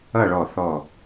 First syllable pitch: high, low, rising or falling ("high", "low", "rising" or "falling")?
falling